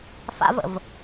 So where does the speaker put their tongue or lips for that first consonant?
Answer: lips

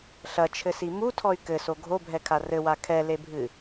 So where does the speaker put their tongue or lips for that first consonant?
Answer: tongue tip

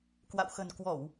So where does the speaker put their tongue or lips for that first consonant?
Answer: velum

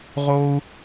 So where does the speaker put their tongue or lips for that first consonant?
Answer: uvula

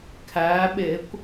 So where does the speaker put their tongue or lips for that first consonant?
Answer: velum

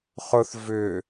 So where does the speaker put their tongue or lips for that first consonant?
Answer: uvula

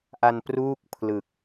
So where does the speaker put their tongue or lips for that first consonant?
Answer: throat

